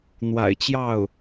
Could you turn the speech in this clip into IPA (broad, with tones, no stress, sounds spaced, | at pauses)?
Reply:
n̪ w a̰˨˩ ɪ̯ t͡ɕ j ɑ˥˩ ʊ̯